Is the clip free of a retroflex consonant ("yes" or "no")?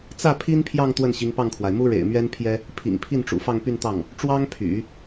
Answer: no